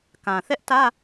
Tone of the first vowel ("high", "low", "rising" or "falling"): low